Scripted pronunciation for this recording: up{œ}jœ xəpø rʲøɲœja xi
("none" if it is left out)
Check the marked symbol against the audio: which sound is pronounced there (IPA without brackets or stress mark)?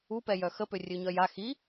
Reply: ɛ